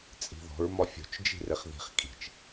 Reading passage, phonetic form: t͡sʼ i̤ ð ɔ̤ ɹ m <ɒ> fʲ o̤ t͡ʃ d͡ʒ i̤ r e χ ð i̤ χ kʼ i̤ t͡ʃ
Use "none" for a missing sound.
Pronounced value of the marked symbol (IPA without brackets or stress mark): ɒ